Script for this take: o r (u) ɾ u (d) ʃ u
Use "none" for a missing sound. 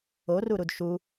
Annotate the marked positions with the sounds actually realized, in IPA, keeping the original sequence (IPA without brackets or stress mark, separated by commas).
u, d